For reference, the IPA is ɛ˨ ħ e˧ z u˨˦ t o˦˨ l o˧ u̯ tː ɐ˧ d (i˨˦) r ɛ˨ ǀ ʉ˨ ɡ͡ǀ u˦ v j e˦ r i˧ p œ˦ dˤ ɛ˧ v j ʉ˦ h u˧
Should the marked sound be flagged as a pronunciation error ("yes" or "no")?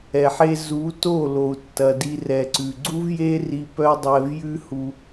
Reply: yes